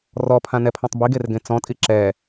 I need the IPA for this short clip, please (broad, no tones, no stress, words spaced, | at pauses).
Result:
rɔpʰãnɛpʰɔ̃tˤ biɡerɡẽ t͡sɔ̃tʼi ǁɛ